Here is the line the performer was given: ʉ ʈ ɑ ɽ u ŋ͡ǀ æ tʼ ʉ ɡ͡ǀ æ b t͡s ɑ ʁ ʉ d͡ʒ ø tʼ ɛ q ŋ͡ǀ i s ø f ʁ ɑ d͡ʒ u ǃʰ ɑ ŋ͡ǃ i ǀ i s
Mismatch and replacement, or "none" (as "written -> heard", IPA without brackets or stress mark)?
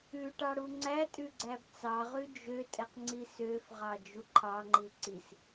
none